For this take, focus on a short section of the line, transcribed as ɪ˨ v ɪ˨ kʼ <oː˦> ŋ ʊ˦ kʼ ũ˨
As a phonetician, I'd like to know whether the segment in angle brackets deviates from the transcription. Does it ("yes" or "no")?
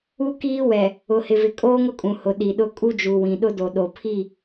no